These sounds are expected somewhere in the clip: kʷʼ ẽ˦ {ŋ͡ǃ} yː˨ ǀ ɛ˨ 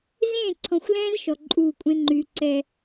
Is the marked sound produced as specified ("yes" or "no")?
yes